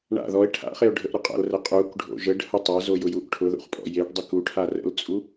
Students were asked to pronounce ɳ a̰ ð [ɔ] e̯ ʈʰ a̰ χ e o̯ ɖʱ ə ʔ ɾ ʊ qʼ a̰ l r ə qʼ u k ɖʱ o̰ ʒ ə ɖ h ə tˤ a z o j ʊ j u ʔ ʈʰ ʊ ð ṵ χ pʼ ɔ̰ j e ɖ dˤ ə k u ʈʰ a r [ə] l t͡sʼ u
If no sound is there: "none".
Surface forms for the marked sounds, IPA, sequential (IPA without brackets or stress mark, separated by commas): ɔ, ə̰